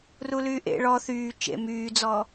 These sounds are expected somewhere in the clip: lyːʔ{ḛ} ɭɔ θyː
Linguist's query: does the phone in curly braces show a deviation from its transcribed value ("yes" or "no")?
no